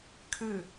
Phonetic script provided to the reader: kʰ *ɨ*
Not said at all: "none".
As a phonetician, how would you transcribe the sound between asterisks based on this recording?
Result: ɨ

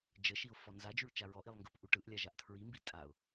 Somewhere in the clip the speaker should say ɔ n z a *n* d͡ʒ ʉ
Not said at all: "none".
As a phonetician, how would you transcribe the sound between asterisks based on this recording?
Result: none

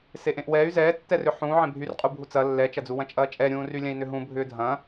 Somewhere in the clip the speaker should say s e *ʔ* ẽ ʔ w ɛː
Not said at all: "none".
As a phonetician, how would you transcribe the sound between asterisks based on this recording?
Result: ʔ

